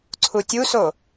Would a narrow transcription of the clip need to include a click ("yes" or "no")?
yes